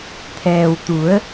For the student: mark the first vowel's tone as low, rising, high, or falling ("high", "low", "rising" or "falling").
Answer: low